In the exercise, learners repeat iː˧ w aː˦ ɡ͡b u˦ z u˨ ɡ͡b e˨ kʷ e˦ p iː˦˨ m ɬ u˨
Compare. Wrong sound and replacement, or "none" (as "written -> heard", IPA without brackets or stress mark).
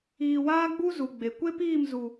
ɬ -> z